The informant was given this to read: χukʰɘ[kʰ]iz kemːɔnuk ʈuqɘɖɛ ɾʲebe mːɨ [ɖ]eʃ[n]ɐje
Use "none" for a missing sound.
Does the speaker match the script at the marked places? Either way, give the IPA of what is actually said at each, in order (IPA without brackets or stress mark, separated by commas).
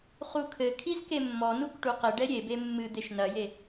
kʰ, d̪, n